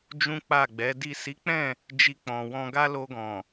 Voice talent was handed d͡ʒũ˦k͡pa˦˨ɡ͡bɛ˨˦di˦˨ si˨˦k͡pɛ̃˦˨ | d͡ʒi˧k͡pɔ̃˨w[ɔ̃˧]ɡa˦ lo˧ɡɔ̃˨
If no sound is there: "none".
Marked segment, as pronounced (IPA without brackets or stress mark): ɔ̃˧